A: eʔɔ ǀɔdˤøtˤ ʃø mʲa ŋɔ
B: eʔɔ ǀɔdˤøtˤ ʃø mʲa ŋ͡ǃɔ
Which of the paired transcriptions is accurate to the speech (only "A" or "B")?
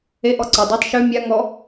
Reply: A